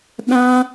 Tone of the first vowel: high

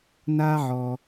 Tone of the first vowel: high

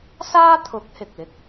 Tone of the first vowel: high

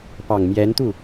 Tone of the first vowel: low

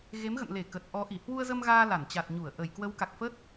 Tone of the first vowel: rising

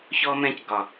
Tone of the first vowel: high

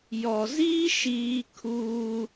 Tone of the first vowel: low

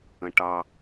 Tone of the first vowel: low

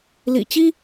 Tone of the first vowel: low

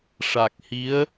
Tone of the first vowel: low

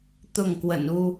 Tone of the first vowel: falling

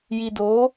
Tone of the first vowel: low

